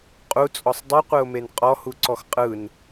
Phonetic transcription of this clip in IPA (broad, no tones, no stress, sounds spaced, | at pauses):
qʼ u t͡sʼ ɔ sˤ dˤ ɯ qʷ ɯ ʊ̯ m e n qʼ ɔ h u ǀ ɔ x qʼ ɯ n